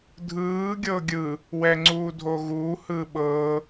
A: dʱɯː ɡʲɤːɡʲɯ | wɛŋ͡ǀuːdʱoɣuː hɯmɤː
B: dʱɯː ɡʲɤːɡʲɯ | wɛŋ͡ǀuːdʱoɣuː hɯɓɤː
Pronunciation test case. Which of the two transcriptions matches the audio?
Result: B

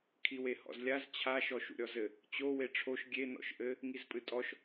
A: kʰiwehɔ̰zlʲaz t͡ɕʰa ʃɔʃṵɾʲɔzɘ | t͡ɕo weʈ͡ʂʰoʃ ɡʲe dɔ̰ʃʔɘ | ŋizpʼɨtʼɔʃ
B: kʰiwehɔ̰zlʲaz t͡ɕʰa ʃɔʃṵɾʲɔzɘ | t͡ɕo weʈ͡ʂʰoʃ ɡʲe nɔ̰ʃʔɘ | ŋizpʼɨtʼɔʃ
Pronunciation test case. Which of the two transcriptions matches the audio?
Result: B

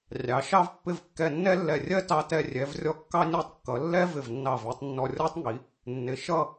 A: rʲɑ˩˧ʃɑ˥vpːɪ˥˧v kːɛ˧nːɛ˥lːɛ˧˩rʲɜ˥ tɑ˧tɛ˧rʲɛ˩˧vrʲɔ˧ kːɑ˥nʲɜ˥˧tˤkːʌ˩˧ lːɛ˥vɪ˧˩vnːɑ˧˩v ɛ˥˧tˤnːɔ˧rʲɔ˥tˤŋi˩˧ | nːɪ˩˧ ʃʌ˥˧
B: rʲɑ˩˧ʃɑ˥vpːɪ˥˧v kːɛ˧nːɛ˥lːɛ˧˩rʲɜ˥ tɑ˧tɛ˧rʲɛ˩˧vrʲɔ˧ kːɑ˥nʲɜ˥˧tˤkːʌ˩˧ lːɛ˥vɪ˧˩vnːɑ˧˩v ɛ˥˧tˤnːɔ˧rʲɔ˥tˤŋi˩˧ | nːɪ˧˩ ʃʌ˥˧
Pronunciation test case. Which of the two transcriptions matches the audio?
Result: A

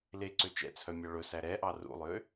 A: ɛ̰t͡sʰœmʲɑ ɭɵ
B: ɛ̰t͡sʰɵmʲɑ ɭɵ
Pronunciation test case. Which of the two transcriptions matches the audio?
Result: A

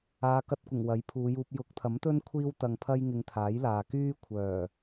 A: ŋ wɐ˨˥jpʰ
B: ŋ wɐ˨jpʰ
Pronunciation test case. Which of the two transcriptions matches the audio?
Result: A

